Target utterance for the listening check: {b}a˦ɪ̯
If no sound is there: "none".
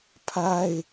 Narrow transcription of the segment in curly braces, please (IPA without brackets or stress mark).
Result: pʰ